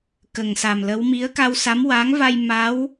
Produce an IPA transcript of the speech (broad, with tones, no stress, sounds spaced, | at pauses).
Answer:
k ə˨˩ ŋ s a˨˩ m l ə˧˥ w m i˧˥ ə̯ k a˧ w s a˧˥ m w a˧˥ ŋ v a˧ j m a˧˥ w